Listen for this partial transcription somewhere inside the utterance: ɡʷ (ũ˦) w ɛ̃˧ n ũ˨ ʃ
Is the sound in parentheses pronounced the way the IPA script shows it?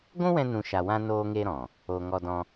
yes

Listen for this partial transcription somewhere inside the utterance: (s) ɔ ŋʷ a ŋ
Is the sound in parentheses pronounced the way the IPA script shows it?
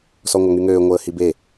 yes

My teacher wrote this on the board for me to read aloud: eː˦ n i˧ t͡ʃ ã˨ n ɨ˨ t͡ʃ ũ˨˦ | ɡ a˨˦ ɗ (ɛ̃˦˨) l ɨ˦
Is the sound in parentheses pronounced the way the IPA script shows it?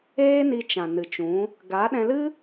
no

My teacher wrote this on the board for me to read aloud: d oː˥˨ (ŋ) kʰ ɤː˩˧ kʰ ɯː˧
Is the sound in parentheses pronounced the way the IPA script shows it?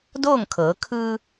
yes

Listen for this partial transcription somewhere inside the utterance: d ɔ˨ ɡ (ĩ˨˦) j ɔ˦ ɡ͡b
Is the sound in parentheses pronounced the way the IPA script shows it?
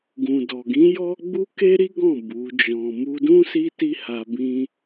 yes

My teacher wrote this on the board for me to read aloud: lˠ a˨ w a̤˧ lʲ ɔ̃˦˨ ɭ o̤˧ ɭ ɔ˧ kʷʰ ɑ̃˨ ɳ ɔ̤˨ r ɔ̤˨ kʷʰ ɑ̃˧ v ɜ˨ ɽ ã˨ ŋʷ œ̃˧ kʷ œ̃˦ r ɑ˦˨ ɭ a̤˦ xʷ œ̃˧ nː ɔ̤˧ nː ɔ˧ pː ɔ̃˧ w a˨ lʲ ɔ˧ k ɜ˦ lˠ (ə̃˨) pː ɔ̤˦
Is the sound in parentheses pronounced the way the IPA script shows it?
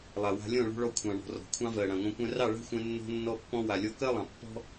no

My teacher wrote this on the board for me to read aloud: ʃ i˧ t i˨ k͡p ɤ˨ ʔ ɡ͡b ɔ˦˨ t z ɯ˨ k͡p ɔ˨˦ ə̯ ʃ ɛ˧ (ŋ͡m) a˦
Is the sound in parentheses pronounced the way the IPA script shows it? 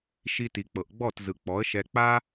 no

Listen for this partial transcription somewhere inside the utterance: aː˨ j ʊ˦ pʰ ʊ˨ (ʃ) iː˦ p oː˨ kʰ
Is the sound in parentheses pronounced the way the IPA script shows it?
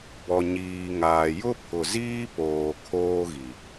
no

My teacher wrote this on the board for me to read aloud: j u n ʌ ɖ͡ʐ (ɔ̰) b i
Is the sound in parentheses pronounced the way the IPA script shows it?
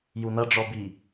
no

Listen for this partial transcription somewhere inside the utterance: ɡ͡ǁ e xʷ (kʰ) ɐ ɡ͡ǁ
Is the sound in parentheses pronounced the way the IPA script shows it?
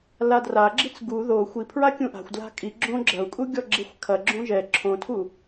yes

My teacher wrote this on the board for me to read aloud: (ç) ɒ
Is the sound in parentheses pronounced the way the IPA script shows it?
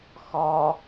no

